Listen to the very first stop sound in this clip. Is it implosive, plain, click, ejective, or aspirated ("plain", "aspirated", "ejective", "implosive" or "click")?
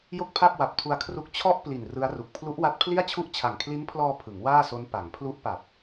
plain